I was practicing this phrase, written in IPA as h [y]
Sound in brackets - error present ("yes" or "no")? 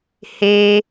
yes